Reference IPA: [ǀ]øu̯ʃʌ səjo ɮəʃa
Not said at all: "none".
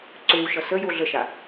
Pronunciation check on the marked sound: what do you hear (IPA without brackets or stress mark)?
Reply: ǀ